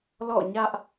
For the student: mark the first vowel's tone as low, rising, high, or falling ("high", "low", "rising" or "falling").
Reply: falling